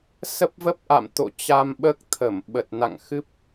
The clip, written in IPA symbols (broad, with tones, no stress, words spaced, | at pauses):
sə˦˥p̚və˦˥p̚ ʔa̰˧˨mt̪o̰˧˨ t͡ɕa˧mɓəː˦˥k̚t̪ʰə˧˩m ɓə˨˩t̚na̰˧˨ŋ xɨ˦˥p̚